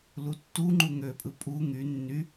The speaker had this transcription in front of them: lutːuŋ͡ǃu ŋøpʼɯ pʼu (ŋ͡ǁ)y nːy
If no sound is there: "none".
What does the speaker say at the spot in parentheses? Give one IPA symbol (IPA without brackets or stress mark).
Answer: ŋ